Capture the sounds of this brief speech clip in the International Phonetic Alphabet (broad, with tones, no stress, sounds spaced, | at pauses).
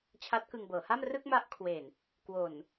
t͡ɕʰ a˦˥ t̚ k ɯ˧ ŋ b ɤː˩˦ h a˥˩ m r ɯ˥˩ k̚ m a˦˥ ʔ kʰ w e˨˩ n | k w o˨˩ n